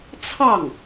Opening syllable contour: falling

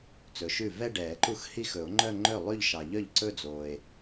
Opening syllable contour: rising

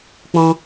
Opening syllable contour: high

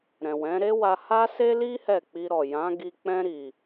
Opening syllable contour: low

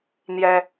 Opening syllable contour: high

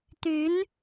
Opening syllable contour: rising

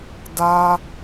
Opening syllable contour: high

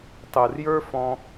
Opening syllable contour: low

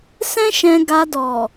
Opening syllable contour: high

